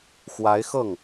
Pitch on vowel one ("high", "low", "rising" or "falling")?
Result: rising